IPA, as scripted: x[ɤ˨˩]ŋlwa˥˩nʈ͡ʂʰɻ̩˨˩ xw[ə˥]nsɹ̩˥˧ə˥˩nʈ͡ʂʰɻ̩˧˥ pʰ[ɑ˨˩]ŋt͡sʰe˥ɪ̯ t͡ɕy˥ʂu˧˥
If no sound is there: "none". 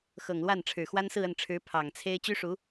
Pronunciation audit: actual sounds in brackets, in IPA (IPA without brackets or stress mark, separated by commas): ɤ˨˩, a˥, ɑ˨˩